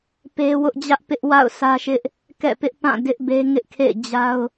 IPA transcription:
p e˦ w ʊ˦ ʔ d͡ʑ ä˦ ʔ p ɪ˦ ʔ w a̰˦˨ ʊ̯ sʰ ä˦ ʃ ɪ˦ ʔ | k ɛ̰˦˨ p ɪ˦ ʔ p ã˦˨ d ɪ˦ ʔ b e˦ ŋ ɪ˦ ʔ kʰ ḛ˦˨ ɪ̯ d͡ʑ a˦ ʊ̯

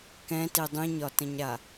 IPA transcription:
k ɛ̃ t i dˤ ĩ ɲ ɒ t ə̃ ɲ ɾ a

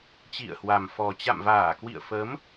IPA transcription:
t͡ɕ ḭ˧˨ ə̯ h w a˨˩ m f ɔ˨˩ t͡ɕ a̰˧˨ m v aː˧˩ k w ḭ˧˨ ə̯ f ə˨˦ m

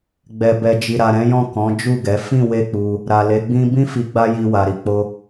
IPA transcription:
ɡ͡b ɛ˨ b ɛ˨ d͡ʒ i˨ ɾ a˨ ɾ ɛ̃˨˦ j ɔ̃˦˨ k ɔ̃˨˦ d͡ʒ u˦˨ ɡ ɛ˨˦ f ĩ˦˨ w e˧ k͡p u˧ | ɾ a˨ l e˨˦ ɡ͡b ĩ˦ b ĩ˦ f i˧ ɡ͡b a˦ j i˧ w a˨ ɾ i˨ k͡p o˧

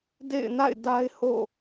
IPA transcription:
d ḛ˦˨ ɪ̯ n a̰˦˨ ɪ̯ d a˦ ɪ̯ h o̰˦˨

